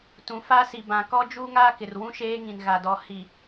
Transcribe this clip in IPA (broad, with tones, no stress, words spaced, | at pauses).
tũ˨ fa˦si˨bã˨ kɔ˦d͡ʒuː˦ŋaː˦kɪ˨r wũ˦ʃeː˦ŋĩ˨n ɣa˨dɔ˨ hi˨